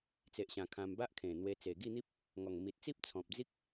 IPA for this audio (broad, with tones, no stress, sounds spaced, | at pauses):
t͡s e˨ ʔ ɕ ã˨˩ kʰ ã˧ m b a˦ ʔ kʰ ẽ˨˩ n̪ w e˧ t͡s e˨˩ ɡ i˥˧ n̪ i˦ p̚ | ŋ ɔ˨˩ ŋ m i˨ t̚ t͡s i˦ p̚ t͡sʰ ɔ̃˨ p̚ d͡z i˦ k̚